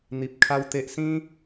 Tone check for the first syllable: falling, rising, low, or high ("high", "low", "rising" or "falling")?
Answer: low